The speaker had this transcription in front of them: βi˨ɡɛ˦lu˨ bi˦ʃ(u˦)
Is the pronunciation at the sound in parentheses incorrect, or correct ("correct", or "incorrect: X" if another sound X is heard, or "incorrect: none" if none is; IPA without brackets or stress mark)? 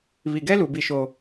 incorrect: o˦